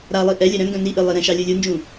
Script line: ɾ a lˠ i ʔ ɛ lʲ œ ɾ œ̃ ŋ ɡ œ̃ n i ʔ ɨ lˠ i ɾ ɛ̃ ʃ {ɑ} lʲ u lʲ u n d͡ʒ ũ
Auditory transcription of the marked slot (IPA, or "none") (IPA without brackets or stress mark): ɑ